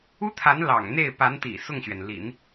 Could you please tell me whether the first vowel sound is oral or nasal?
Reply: oral